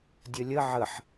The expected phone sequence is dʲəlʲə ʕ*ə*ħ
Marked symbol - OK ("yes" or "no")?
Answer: yes